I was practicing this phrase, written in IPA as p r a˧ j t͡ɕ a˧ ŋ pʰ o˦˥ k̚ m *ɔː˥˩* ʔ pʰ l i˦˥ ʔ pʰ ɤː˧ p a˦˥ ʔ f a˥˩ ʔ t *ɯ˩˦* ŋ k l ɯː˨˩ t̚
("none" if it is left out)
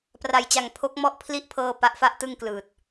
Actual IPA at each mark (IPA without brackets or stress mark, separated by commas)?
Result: ɔ˥˩, ɯ˥˩